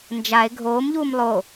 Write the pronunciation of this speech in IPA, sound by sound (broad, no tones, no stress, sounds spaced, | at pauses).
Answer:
n d͡ʒ a e̯ ɡʱ oː m ʎ uː m lˠ o